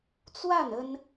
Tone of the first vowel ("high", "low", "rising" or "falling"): falling